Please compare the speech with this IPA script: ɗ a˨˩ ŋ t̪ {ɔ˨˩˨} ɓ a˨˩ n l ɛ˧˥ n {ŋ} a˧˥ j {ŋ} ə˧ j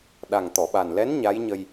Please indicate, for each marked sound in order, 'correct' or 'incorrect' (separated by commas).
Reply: correct, incorrect, incorrect